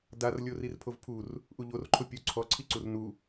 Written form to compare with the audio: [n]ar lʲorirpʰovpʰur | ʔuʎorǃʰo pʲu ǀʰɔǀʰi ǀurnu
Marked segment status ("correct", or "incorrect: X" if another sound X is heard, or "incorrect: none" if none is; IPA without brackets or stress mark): incorrect: d